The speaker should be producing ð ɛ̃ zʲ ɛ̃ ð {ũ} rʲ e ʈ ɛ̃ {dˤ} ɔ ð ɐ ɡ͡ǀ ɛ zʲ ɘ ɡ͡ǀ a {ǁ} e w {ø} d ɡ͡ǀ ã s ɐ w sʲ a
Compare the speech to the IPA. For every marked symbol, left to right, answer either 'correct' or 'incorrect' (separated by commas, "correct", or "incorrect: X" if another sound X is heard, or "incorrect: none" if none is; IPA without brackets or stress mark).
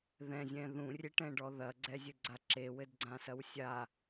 correct, incorrect: ɖ, correct, incorrect: ɘ